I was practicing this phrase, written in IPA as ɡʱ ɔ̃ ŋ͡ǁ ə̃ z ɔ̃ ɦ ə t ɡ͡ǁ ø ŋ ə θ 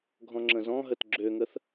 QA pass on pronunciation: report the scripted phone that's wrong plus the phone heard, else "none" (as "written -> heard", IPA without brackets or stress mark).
none